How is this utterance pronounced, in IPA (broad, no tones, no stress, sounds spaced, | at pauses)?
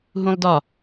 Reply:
ɦ ũ lˠ d ɒ